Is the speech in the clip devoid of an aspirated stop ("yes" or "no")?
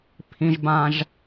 no